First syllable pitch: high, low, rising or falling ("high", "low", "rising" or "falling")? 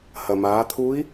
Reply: low